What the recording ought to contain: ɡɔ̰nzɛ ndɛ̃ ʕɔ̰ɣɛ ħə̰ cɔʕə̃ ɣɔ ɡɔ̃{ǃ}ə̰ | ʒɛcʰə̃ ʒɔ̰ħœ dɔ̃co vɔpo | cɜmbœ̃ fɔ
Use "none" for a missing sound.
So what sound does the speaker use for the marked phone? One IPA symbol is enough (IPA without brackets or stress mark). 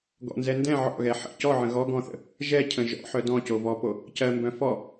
θ